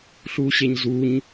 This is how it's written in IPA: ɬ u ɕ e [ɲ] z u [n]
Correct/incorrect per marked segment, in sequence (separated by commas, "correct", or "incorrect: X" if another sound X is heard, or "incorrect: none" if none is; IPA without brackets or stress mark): correct, incorrect: ɲ